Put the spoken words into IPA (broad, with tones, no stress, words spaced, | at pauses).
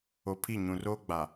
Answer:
o˨pʰi˦˨ ɲũ˨roː˦ɡ͡ba˨